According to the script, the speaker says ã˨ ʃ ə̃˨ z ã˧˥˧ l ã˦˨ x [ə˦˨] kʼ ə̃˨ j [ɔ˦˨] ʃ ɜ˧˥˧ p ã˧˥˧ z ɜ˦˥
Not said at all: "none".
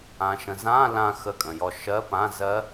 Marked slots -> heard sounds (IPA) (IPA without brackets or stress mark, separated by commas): ə˦˨, ɔ˦˨